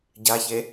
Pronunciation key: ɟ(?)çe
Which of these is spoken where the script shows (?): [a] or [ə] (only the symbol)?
a